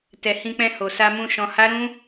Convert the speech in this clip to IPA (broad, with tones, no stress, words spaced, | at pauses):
tɛ˨hĩ˧k͡pɛ̃˧ ho˨sa˧mũ˧ ʃɔ̃˧ha˦ɾũ˦